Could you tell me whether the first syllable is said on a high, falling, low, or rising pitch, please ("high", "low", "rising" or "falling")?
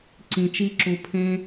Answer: low